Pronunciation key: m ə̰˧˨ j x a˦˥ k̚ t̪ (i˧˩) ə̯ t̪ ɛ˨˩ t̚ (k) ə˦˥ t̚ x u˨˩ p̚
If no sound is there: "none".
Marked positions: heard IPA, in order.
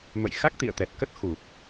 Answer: ḭ˧˨, k

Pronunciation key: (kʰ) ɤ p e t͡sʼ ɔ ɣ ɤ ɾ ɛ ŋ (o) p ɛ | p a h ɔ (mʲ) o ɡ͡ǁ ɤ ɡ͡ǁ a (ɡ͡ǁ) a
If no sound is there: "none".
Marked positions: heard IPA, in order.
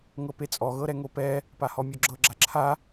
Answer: ŋ, o, mʲ, ǁʰ

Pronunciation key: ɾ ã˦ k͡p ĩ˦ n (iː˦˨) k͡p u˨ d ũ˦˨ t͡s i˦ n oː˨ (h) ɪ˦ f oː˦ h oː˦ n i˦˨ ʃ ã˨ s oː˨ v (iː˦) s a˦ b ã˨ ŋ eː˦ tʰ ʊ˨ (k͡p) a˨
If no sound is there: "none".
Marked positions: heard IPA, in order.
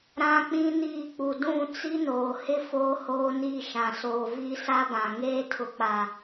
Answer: iː˦˨, h, i˦, k͡p

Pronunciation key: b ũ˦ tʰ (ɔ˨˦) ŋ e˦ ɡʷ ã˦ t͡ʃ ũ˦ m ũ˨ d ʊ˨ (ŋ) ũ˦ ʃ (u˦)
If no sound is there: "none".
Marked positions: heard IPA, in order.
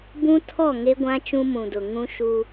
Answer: ɔ˦˨, ŋ, u˦

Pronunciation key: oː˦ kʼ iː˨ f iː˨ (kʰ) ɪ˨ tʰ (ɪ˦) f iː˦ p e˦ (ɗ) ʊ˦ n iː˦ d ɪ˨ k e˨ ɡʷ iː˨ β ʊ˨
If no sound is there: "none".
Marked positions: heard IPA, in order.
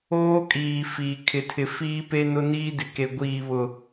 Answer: kʰ, ɪ˨, n

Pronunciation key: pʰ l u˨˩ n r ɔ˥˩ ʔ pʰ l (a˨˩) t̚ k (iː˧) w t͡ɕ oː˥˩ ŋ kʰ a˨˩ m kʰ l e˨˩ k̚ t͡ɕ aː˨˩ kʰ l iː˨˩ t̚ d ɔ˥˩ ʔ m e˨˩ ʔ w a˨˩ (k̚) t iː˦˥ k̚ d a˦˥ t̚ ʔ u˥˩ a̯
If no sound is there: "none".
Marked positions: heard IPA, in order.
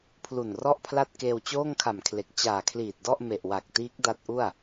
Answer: a˥˩, eː˧, k̚

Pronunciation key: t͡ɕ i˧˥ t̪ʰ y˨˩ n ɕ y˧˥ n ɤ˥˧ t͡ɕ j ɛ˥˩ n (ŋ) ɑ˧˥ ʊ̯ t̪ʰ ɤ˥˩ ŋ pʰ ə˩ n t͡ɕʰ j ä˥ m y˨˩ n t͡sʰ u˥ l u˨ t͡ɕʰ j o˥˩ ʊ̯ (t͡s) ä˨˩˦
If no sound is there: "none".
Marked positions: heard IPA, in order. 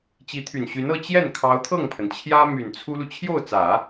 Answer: kʰ, t͡s

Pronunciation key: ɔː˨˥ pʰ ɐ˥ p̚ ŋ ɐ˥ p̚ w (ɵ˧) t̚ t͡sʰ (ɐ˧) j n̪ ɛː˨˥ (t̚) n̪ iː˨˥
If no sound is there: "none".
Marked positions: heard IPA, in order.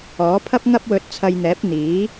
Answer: ɵ˧, ɐ˧, p̚

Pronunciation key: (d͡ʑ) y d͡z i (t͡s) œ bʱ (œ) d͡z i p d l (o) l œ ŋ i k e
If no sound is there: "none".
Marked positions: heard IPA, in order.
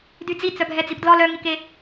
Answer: d, t͡s, ɛ, ɔ

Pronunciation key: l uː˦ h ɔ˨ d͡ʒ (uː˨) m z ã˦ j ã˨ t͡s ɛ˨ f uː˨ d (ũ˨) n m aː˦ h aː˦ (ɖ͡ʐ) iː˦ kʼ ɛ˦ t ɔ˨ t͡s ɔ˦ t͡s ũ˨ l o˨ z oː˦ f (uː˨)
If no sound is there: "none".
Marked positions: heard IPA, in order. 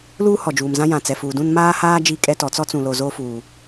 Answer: uː˨, ũ˦, d͡ʒ, uː˨

